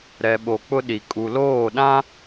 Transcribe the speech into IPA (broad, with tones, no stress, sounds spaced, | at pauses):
ɾ ɛ˨ ɓ o˨ k͡p ʊ˦ ɗ i˨ kʼ u˨ l oː˦˨ ɗ ã˦